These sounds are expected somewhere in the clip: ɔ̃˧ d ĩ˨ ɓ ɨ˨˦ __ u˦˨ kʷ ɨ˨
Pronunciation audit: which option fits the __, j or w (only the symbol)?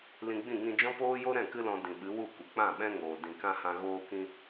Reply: w